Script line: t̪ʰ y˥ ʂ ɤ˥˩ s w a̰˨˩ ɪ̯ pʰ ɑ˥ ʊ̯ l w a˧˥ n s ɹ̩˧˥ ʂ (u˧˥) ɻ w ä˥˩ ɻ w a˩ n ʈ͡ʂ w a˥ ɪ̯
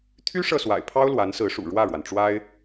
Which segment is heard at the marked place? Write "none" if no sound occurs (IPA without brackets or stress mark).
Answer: ṵ˨˩